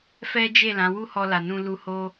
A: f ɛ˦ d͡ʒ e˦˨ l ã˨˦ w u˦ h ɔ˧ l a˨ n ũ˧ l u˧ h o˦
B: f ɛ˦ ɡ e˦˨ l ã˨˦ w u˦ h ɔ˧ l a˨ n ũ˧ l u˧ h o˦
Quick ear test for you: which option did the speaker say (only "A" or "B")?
A